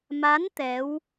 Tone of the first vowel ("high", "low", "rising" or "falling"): rising